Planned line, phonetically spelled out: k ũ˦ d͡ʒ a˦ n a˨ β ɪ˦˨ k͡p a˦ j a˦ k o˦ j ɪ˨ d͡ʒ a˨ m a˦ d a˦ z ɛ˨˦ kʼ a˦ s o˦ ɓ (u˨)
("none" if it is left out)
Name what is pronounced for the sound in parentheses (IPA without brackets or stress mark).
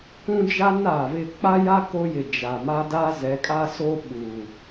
u˨